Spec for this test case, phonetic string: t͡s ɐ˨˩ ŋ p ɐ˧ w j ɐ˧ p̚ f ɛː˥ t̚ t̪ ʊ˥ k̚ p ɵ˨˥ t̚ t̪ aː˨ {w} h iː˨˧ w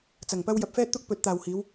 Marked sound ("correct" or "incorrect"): correct